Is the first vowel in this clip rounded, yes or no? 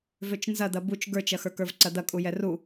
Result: yes